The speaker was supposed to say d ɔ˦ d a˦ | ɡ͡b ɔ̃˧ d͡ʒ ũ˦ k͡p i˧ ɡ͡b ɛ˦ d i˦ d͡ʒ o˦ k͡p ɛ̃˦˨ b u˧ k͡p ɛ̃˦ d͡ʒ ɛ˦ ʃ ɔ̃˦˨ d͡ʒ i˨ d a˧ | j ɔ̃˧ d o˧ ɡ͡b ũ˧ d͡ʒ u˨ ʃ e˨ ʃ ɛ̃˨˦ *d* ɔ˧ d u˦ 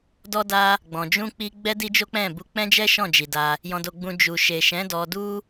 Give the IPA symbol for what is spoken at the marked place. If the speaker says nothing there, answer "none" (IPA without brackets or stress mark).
d